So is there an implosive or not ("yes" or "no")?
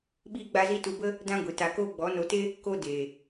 yes